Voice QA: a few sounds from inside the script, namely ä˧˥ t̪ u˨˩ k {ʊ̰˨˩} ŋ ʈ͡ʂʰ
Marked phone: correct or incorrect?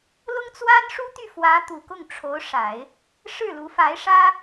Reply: incorrect